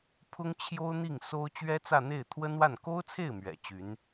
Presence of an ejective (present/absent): absent